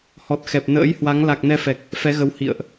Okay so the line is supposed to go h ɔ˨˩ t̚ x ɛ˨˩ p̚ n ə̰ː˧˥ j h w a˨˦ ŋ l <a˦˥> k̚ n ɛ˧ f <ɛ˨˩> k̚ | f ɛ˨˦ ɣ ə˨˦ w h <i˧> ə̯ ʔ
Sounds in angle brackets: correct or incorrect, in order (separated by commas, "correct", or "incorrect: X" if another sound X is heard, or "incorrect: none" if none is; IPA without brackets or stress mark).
incorrect: a˨˩, correct, incorrect: ḭ˧˨